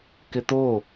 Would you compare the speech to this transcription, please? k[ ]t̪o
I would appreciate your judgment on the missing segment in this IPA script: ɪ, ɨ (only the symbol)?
ɪ